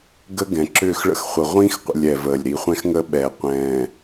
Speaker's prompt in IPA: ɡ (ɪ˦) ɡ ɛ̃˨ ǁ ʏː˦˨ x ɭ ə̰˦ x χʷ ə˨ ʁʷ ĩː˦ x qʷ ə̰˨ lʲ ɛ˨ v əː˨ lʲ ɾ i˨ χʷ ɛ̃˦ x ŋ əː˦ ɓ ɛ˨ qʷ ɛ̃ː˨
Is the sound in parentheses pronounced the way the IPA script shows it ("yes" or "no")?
no